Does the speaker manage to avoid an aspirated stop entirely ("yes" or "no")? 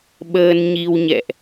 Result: yes